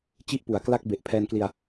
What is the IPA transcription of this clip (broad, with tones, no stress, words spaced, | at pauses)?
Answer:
t͡ɕi˥˩ʔpu˨˩a̯kla˥˩k̚ be˨˩ʔpʰɛː˧nkli˧a̯